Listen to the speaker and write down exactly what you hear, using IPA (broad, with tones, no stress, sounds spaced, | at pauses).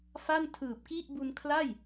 f a˥˩ n tʰ ɯː˨˩ p̚ k i˥˩ ʔ b u˧ n kʰ l a˥˩ j